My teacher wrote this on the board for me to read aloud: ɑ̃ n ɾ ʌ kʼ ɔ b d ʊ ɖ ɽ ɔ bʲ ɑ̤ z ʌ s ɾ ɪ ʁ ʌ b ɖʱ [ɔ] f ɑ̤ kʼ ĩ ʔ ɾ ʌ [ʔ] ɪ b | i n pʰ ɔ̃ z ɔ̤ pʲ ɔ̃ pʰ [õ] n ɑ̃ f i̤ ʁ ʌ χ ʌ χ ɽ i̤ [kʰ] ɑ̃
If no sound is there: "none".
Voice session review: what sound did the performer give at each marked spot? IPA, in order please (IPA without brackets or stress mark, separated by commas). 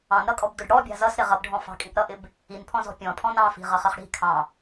ɔ̃, ʔ, ɔ̃, kʰ